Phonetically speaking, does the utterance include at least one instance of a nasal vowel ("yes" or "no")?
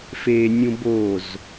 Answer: yes